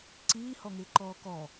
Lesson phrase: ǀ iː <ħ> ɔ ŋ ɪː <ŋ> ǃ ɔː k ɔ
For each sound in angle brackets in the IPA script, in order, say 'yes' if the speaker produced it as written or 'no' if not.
no, no

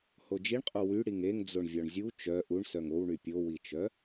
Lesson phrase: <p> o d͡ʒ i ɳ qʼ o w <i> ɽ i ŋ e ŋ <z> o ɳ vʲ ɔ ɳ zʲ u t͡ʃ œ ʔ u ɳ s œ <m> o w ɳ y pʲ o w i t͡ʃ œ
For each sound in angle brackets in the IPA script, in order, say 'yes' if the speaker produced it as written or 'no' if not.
no, no, no, no

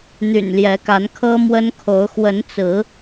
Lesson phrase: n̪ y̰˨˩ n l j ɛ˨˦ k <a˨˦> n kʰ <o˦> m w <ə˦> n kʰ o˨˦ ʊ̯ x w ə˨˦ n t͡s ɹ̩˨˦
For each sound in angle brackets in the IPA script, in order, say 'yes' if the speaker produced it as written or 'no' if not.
yes, no, yes

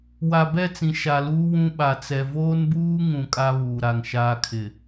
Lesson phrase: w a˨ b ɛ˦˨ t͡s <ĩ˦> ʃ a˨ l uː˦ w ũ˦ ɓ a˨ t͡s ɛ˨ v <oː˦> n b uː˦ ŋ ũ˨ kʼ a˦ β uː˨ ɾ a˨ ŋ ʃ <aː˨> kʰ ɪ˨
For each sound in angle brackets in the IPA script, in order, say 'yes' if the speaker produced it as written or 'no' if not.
no, yes, no

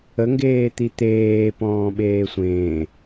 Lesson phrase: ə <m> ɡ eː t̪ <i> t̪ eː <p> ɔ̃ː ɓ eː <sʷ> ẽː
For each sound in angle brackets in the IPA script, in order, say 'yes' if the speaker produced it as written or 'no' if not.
no, yes, yes, yes

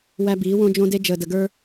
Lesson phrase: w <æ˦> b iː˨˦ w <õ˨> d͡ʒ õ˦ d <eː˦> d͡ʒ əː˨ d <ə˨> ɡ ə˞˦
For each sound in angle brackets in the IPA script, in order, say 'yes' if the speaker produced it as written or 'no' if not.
yes, no, no, yes

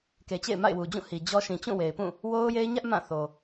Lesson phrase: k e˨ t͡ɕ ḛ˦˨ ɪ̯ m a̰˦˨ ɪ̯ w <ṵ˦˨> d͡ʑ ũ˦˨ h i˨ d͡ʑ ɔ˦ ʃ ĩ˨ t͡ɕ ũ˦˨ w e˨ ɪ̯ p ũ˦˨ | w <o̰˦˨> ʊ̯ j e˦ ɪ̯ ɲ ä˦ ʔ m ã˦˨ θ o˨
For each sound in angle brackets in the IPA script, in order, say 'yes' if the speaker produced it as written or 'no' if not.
no, no

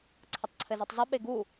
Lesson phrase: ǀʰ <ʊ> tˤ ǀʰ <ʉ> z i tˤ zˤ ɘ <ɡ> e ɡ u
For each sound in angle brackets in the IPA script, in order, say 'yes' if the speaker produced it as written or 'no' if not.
no, no, no

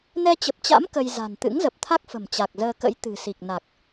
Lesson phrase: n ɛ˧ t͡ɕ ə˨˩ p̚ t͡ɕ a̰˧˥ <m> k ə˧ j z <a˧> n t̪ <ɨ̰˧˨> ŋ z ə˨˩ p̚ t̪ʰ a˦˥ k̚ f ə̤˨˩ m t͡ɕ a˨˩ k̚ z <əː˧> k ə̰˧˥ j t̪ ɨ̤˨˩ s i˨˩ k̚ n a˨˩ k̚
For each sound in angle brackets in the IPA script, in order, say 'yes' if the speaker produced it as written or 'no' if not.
yes, no, no, yes

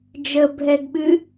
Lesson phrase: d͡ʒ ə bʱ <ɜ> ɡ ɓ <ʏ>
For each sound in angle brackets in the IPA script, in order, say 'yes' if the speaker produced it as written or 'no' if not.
no, no

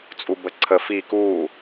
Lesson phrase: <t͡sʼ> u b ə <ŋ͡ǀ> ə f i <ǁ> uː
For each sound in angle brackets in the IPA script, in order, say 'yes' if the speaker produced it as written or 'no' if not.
yes, no, no

